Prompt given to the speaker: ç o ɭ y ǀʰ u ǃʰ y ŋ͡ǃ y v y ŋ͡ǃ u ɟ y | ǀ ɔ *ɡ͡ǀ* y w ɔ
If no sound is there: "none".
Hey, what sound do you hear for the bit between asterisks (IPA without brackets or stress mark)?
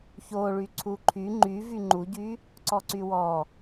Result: ǀ